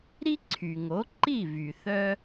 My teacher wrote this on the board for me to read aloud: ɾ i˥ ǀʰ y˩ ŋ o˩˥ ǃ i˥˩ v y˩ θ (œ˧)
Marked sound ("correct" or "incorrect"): correct